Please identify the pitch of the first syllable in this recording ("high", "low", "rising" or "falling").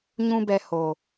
high